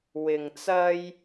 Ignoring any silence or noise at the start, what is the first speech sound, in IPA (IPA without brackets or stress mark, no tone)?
w